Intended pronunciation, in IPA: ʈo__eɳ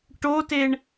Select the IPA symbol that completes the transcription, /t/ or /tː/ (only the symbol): t